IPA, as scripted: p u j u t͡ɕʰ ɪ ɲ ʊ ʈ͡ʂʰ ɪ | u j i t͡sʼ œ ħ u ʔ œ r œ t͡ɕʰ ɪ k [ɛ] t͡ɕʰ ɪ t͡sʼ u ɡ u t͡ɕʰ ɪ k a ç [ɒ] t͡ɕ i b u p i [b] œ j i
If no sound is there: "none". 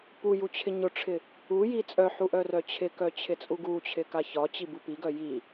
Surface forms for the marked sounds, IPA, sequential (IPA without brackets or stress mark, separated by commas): œ, ɒ, ɡ